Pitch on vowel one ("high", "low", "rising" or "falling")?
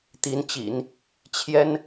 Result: rising